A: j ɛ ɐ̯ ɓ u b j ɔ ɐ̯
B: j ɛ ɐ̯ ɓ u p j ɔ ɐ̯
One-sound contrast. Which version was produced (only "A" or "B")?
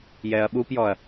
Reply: B